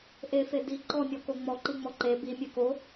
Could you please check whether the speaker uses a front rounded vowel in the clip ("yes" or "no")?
no